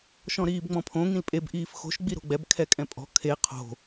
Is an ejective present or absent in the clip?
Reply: present